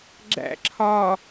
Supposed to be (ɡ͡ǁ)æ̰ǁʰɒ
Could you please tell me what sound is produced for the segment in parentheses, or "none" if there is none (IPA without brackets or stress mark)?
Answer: ɡ͡ǁ